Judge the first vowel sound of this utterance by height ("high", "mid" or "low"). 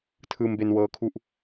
high